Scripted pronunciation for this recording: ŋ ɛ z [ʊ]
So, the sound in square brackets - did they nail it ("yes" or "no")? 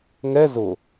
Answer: yes